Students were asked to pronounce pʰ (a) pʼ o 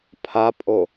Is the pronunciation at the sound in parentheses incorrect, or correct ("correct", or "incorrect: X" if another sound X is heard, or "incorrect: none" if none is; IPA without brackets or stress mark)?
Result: correct